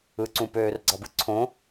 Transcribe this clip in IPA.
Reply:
ɯ ǀ ũ p øː r ɡ͡ǀ ɑ b ɯ ǀʰ õ

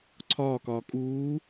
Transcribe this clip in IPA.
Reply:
ǀʰ ɒː k ɒː kʼ uː

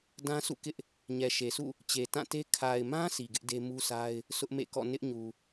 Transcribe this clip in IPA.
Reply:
d ã˦ s ṵ˦˨ k ɪ˦ ʔ | ɲ ɛ˨ ʃ e˨ sʰ ṵ˦˨ | t͡ɕ e˨ t ã˦˨ t e˦ kʰ a˨ ɪ̯ m ã˦ sʰ i˨ ɡ ɪ˦ ʔ d e˦ m u˦ sʰ a˦ ɪ̯ | sʰ ʊ˦ ʔ m ḛ˦˨ k ɔ̰˦˨ n ɪ˦ ʔ ɲ u˨

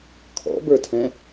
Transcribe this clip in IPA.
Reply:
kʰ ɔ̰ b ə˞ tʰ ɛ̃

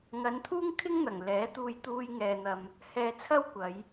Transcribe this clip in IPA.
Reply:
ŋ ɐ˨˧ n t̪ʰ uː˥ ŋ kʰ ɪ˥ ŋ n̪ ɐ˨˩ ŋ l ɛː˨˥ t̪ uː˧ j t̪ uː˥ j ŋ ɛː˧ n̪ ɐ˧ m | h ɛː˧ t͡sʰ ɐ˥ w kʷ ɐ˨˧ j

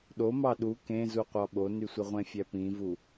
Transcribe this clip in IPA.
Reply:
ɗ o m ɑ ɗ u k ẽ z u qʷ ɑ ɓ o n y sʷ e ʁʷ ẽ fʲ æ p ĩ v u

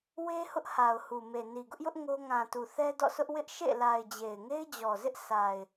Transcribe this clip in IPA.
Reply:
w e˦ h ʊ˦ ʔ h a˨ ʊ̯ h u˨ m e˨ n i˨ ɡ ʊ˦ ʔ j ʊ˦ ʔ ŋ o˦ ŋ ã˨ t u˨ θ ɛ˦ d ɔ̰˦˨ s ʊ˦ ʔ w ɪ˦ ʔ ʃ ḛ˦˨ l a˨ ɪ̯ d͡ʑ e˨ ɪ̯ ŋ e˦ ɪ̯ d͡ʑ ɔ˨ z ɪ˦ ʔ s a˨ ɪ̯

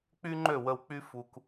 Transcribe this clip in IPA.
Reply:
k͡p y˦ ŋ͡ǃ ø˦˨ w ə˧ w k͡p y˦ f u˧ k

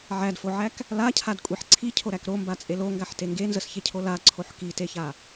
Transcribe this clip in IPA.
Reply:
ʕ æ d f o ʕ æ k | l a cʰ a d kʷʼ e ħ ǀʰ i cʰ o ɾ æ k ɾ o m b a t͡sʼ e l o ŋ ɡ a ħ t e ŋ ɡ e n z ə s ç e cʰ o l a ǀʰ o ħ k i t e ç a

